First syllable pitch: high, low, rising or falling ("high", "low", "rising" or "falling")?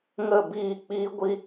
falling